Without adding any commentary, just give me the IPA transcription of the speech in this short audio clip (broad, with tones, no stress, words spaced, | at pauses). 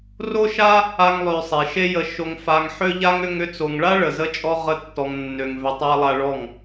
ro˦ʃa˦ | a˦ŋlˠø˧ sˤe˨ʃe˦jə˧ ʃo˧ŋfa˧ŋħø˦ʎa˦ŋ ʏ˧ŋʏ˧t͡so˨ŋɭa˦ ɭə˨zə˦t͡ʃʼɔ˦ ʁə˦tːɔ˧ŋ nːø˨ŋvʏ˨tˤa˧ lˠa˧ɭɔ˦˨ŋ